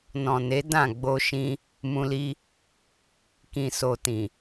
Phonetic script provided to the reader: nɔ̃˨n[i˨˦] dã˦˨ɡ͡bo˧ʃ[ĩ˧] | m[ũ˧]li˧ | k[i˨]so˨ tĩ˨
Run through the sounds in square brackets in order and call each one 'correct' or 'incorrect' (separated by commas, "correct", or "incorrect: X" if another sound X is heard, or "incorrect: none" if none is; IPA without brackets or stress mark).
incorrect: e˨˦, correct, correct, incorrect: ĩ˨